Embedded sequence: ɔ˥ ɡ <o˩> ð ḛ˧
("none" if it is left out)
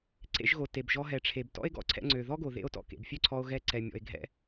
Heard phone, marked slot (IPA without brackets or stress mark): o˩